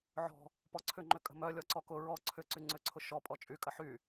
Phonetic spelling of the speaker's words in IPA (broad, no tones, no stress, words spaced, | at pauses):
ʕɔ̤ | pɔǀʰʏŋ͡ǃʏkʼə̤ mœ lʲɔǀɔkʊ ɹɔ ǀʰʏǀy ŋ͡ǀʏǀʰʊ ʃɔ pʼɔt͡ʃʼy kʼəħy